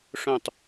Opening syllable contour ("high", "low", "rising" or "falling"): falling